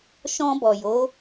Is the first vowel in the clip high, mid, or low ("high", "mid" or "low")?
mid